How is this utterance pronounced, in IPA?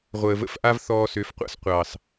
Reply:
ʁʷ əː˨ v ə̰˧ f ʔ a˦ v θ ɔː˧ s ø˨˦ f qʷ a̰˦ s qʷ ɑː˨ s

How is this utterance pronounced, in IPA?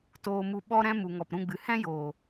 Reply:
t oː˧ m u˧ ɓ ɔ˦ ɾ ɛ̃˦ m u˨ ŋ ɔ˨ p ɾ ũ˦˨ ɡ͡b ɨ˨ h ɛ̃˦ j oː˨

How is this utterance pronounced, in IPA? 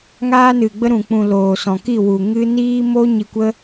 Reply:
ŋ aː˦ n ɨ˨ ɡ͡b ə˦ ɾ ũ˨ k͡p ũ˨ l oː˨ s ɔ̃˨ k i˦˨ w u˨ ŋ ɨ˦ n iː˦ m o˦ ɲ i˧ kʷ ə˦

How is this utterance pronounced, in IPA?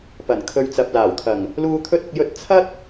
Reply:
p ɐ˨˩ n kʰ ɵ˧ ɥ t͡s ɐ˨ p̚ l aː˨˩ w t̪ʰ ɐ˨˩ ŋ | l uː˧ t̪ʰ ɵ˧ t̚ ʊ˨ k̚ j ɵ˧ t̚ t͡sʰ ɐ˥ t̚

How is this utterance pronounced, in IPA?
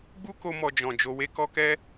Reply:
ɡ͡b u˦ k o˧ m ɔ˧ d͡ʒ ɔ̃˨ d͡ʒ o˧ w e˦ k ɔ˦ k ɛ˦

